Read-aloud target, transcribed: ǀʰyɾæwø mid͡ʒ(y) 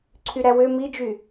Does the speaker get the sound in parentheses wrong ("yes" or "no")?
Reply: no